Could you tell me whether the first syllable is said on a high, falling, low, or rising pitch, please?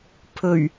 low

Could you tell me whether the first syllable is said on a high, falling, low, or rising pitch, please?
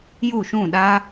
falling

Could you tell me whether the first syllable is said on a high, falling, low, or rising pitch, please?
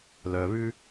low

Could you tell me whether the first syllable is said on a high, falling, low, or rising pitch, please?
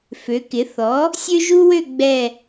rising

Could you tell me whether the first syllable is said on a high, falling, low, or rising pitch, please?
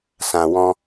low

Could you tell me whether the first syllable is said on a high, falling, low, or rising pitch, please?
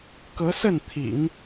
rising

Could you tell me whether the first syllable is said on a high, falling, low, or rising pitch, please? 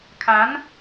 rising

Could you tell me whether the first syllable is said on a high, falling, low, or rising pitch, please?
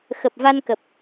low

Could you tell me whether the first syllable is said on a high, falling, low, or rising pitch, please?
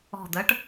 low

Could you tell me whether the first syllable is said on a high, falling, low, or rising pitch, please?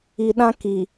low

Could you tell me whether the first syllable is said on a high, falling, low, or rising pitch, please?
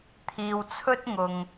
low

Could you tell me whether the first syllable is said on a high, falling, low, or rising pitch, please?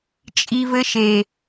low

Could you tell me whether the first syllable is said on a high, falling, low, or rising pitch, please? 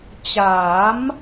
rising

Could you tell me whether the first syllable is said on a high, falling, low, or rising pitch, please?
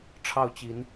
falling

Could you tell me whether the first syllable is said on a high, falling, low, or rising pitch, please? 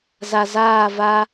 low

